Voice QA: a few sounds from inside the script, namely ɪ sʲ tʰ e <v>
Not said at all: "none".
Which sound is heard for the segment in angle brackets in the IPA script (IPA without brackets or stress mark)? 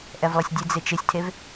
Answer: v